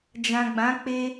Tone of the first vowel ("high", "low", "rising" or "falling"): low